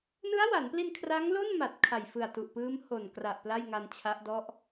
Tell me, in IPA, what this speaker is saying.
n ɯ˦˥ a̯ w a˩˦ n p l i˧ n kʰ r a˦˥ ŋ l o˥˩ n m a˨˩ t̚ kʰ a˨˩ j f ɯ˨˩ a̯ t u˨˩ ʔ p ɯː˦˥ m h o˨˩ n k r a˨˩ ʔ p l a˥˩ j ŋ a˧ n t͡ɕʰ a˦˥ ʔ d ɔ˥˩ ʔ

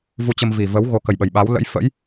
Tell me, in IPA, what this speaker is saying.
v u˧ t͡ɕ ə˧ m v i˨˩ v ə˨˦ w ɣ o˨˦ k ə˨˩ j ɓ ə˨˩ j ɓ a˨˦ w l ə̰˧˥ j f ə̰˧˥ j

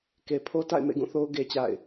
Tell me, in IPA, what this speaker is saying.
k e˨ pʰ o˦ t a̰˦˨ ɪ̯ m ḛ˦˨ ɡ ũ˦˨ θ o˦ ʊ̯ ɡ e˦ t͡ɕ a̰˦˨ ɪ̯

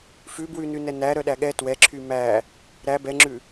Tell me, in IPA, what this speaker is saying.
f ʉ b w ʉ n ʉ n ɛ n æ ɾ œ ɗ æ ɠ ɛ t w ɛ ǁʰ y m æ | ɾ æ b ɛ ŋ͡ǁ ʉ

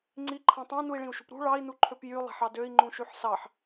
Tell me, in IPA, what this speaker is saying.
ŋ͡ǀ i ǃʰ ɑ̃ tˤ ɑ̃ n u i̯ ɭ ĩ u̯ ʃ ṳ p ɾ ṳ ɭ ɑ i̯ n u ǃʰ ø p j y lˠ æ̤ ħ ɑ d ø i̯ ŋ͡ǃ ũ ʃ y ħ s ɑ ħ

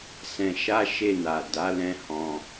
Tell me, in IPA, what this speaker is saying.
s ɛ̃˧ ʃ a˦ ʃ e˦˨ n a˨ d a˨˦ l ɛ̃˧ h ɔ̃˧

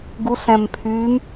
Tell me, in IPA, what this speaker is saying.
ɡ u s ɛ̃ m pʰ y m

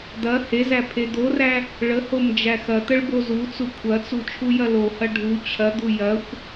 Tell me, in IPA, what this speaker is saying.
d̪ ɐ h e z æ pʰ e d̪ o r æ | ɭ ə h o m d͡ʒ æ x ɐ t̪ ə ɭ b o z u t͡s u kʷʰ ɐ t͡s u t͡ʃʰ u j ɐ l o h ɐ ɖʱ u t͡ɕʰ ɐ d̪ u j ɐ xʷ

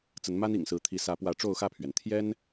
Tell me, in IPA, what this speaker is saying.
t͡s ə˨˦ n m a˦ n ḭ˨˩ ŋ s ɹ̩˨˦ t̪ʰ i˨˦ s ä˨˦ p w ä˨˦ ʈ͡ʂ o˥˨ ʊ̯ x ä˥˨ pʰ ɥ ɛ˩ n t̪ʰ j ɛ˦ n

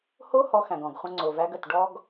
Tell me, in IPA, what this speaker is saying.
h o˦ h ɔ˧ x æ̃˨ ɡ ɔ̃˨ ɡ χʷ ə̃˧ ŋ͡ǀ o˨ v æ˧ ɡ ə˨ t ɖ ɔ˦ ɡ

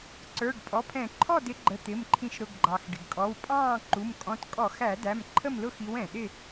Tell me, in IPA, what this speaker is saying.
ǀ ə˞˩˧˩ ɖ pʼ ɔ˩˧˩ pʰ ɛ̃˧˩˧ ǃʰ ɔ˥˨ d ɪ˨˦ ɡ͡ǃ ə˩˧˩ t̪ ɪ˩˧˩ m ǃʰ ĩ˧˩˧ ʃ ɾ ʊ˩˧˩ ɡ ɡ͡ǃ ɑ˩ x ɖ ɪ˩ ɡ kʼ ɔ˩˧˩ w pʼ ɑ̃ː˥˨ ǃ u˩˧˩ m kʼ ɔ̃˨˦ t kʼ ɔ˧˩˧ x æ˧˩˧ d æ˩˧˩ m ǃʰ ə˥˨ m l ʊ˥˨ x i˨˦ w ɛ̃˩ ɗ ɪ˥˨

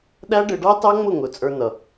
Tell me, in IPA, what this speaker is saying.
ɗ æ˦ ɖ ɪ˧ ɖ ɑ˦ t ɑ˦ ŋ͡m ʊ˦˨ ŋ ʊ˨ t͡sʼ ə˞˧ n ʌ˨

